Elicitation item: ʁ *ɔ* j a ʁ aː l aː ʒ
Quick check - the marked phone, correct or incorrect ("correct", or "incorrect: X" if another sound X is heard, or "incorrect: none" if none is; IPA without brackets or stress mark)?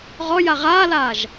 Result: correct